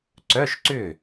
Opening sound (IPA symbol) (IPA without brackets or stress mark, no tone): ǀ